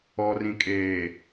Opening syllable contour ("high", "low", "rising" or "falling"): low